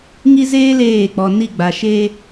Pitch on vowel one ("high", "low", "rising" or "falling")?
high